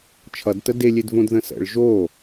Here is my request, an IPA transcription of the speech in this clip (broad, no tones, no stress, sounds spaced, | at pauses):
t͡ʃʰ ʌ d t ə d e lʲ e d v õ d ð ə̃ s ə̰ ɭ ʒ o